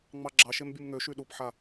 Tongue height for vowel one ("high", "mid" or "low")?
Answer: low